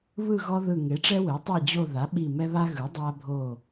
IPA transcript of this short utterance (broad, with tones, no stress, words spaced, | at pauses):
βɯ˦˨ɣɔ˦ ðɯ˦˨ ŋe˩˥ʈ͡ʂɛ˦we˩˥tˤe˦˨ d͡ʑo˦˨ða˩˥ ɓi˦˨ mɛ˦βa˦ɣɯ˩˥ dˤa˦bʱo˦˨